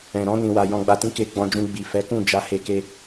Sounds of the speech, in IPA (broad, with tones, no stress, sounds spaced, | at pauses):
ɛ̃˨ ɾ ɔ̃˧ n ĩ˨ w a˨ j ɔ̃˨ ɡ͡b a˨ t ĩ˨˦ k e˧ ɡ͡b ɔ̃˧ d͡ʒ ũ˧ ɡ͡b i˨ f ɛ˨˦ k ũ˦˨ d͡ʒ a˧ h e˧ k e˧